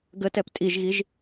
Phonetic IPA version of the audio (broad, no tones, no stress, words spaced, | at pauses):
ɡətɛp tʼiʒɣiʒ